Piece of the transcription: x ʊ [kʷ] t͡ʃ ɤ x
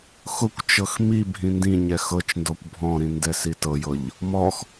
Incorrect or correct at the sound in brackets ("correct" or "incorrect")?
correct